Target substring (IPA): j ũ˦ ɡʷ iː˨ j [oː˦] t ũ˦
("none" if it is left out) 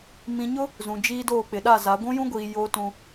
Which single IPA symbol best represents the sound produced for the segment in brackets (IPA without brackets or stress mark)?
oː˦